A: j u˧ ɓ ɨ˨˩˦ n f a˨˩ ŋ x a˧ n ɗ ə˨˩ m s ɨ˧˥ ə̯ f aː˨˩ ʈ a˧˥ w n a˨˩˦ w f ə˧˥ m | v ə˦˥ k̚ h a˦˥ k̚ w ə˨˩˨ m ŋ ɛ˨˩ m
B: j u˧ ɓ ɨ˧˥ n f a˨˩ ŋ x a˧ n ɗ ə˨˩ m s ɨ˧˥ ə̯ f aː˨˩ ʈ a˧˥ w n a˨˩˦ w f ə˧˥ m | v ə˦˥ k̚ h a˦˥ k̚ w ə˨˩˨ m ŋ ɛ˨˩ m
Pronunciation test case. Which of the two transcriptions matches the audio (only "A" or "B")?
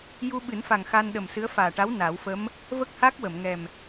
A